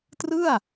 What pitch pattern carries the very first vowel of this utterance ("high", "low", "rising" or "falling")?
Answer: falling